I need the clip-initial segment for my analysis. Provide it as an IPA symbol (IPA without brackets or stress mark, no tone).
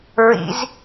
ɹ